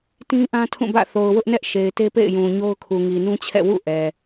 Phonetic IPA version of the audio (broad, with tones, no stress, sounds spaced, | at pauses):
t ĩ˦ ʔ ã˦ tʰ ũ˦˨ b ä̰˦˨ θ o˨ ʊ̯ w ʊ˦ ʔ n ɛ˦ ʔ ʃ e˨ ɪ̯ t e˦ p ḛ˦˨ ɪ̯ j ũ˨ ɲ o˦ ʊ̯ kʰ u˨ ŋ i˨ n ũ˦ t͡ɕʰ ɛ̰˦˨ w ṵ˦˨ ʔ ɛ˨